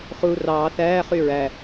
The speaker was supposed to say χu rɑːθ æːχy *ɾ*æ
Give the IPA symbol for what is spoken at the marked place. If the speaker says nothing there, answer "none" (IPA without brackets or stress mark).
ɹ